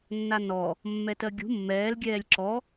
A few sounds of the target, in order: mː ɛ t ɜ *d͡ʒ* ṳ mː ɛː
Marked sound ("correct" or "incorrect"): incorrect